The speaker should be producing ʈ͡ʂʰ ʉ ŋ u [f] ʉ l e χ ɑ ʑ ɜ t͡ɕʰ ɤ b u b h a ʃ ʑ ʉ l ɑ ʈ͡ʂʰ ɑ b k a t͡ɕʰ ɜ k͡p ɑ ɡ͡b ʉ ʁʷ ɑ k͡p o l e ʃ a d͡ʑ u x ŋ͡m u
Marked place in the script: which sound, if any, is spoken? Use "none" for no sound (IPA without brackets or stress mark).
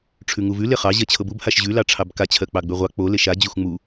v